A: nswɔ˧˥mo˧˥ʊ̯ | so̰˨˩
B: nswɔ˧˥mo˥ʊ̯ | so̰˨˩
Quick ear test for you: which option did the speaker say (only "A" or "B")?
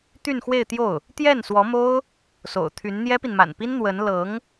B